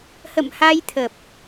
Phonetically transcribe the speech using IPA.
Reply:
h ə̰˧˨ m h a˧ j t̪ʰ ə˨˩ p̚

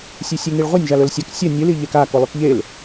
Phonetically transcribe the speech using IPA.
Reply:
sʲ ʉ sʲ ʉ ŋ i ɭ ʁʷ ɐ nʲ ʒ a l ɵ l sʲ ɐ k sʲ ɐ nʲ ɨ l i ʎ e k a k o lˠ ʉ k ʎ e l

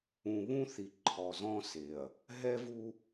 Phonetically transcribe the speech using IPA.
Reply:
ũ˨ β ũ˦ θ i˨ ǃʰ ɔ˨ z ɔ̃˦ s e˨ ɐ̯ | ɦ ɛ˦ v u˦

